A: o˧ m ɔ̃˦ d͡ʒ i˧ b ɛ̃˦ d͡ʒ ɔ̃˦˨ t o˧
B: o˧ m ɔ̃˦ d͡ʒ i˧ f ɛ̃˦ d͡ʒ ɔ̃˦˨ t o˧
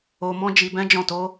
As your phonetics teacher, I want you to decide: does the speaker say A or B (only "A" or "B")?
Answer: A